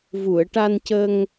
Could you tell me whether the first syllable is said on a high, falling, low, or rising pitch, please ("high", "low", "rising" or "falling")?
low